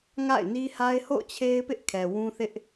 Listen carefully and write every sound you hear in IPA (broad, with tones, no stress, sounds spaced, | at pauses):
ŋ a̰˦˨ ɪ̯ n i˦ h a˦ ɪ̯ h o̰˦˨ ʊ̯ t͡ɕʰ e˦ ɪ̯ p ɪ˦ ʔ kʰ ɛ˨ w ũ˦ θ ɪ˦ ʔ